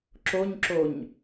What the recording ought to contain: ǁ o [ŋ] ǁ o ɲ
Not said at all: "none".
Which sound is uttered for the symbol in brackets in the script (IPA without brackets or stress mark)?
ɲ